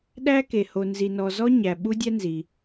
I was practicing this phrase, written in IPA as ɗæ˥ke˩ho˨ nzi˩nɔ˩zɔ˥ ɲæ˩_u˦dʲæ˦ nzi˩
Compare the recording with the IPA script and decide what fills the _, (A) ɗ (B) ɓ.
B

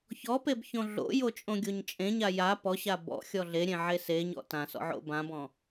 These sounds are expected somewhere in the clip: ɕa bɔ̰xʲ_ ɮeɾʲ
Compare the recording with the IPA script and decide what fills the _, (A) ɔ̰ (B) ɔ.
B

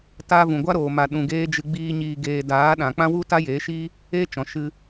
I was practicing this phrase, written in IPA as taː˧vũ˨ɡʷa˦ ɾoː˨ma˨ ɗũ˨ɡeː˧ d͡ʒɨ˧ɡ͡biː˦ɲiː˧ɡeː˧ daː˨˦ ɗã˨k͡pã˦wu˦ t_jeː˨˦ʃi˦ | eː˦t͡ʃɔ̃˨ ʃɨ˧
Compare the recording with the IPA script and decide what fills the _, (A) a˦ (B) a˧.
A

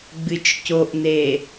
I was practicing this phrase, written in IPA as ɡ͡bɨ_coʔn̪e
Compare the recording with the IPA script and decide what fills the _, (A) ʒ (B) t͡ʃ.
B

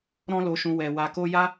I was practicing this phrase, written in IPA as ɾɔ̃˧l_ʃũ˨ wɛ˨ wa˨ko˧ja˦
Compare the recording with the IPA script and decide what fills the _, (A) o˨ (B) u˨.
A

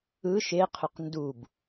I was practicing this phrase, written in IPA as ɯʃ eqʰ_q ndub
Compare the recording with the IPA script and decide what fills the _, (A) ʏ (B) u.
A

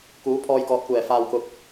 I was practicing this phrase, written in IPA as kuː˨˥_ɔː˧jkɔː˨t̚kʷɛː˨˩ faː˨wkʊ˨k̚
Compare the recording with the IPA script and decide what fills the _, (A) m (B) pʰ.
B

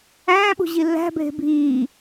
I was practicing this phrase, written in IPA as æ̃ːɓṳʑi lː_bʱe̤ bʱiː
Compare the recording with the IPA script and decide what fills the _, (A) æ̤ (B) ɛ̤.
A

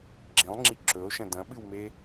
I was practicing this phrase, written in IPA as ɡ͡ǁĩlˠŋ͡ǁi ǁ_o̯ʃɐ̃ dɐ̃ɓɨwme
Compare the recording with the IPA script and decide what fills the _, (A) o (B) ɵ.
B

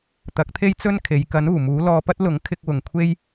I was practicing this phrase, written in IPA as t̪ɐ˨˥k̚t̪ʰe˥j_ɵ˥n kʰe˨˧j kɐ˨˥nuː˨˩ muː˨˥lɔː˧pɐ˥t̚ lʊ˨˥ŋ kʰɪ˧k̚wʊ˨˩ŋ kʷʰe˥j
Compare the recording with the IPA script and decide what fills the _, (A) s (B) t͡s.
B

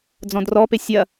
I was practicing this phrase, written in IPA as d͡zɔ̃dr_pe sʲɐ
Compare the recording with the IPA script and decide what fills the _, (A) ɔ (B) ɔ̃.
A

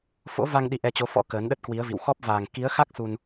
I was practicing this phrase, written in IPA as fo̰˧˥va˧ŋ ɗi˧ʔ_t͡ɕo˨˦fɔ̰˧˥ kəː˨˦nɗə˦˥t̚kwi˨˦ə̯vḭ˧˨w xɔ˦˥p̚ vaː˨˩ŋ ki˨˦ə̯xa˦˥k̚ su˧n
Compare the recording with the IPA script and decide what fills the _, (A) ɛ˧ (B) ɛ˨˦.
A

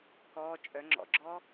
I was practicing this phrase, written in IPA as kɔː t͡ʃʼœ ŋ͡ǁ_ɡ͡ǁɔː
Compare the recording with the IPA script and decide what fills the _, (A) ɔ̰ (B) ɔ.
A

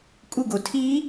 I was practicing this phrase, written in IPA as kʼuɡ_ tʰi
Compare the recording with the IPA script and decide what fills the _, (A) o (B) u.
A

